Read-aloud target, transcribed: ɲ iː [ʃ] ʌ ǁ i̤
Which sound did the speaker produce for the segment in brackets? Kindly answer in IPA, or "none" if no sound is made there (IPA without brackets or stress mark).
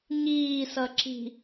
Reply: s